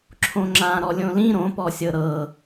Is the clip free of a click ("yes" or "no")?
no